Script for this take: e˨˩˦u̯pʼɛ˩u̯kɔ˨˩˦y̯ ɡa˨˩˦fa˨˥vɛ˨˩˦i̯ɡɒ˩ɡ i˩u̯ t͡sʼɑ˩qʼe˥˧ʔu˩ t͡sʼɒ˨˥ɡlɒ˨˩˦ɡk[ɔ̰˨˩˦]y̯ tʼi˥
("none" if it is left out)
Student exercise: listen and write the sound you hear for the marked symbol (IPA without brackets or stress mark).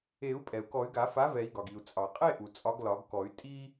ɔ˨˩˦